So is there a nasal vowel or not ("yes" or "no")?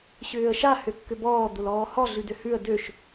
no